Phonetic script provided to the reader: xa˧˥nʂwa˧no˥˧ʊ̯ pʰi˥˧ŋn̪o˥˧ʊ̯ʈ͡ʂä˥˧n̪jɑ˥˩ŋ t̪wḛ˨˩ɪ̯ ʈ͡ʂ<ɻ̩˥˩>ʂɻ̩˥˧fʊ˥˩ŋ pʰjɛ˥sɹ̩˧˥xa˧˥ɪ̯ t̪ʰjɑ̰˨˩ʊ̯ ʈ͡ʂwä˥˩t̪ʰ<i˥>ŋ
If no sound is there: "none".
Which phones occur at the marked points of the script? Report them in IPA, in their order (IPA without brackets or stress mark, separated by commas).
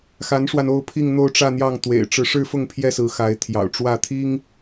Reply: ɻ̩˧˥, i˥